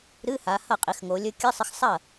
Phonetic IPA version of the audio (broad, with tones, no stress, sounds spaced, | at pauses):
ɾ ɨ˧˥˧ h a˩˧ h ɐ˥˩ qʼ i˩˧ x ŋ o˩˧ lʲ ɵ˧˥˧ kʲ ɨ˧˥˧ sˤ ɨ˧ x sˤ ɐ˥˩